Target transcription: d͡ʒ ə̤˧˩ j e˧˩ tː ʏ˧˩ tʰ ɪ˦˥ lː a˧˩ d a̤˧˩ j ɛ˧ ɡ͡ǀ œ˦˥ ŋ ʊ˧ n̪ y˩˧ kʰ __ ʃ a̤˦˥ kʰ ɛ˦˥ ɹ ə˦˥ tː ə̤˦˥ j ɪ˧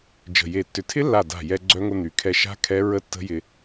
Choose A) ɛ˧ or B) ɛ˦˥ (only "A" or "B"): A